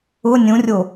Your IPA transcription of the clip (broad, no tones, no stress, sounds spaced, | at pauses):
ʊ nʲ ũ rʲ o